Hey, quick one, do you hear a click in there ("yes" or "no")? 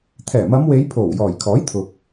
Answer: no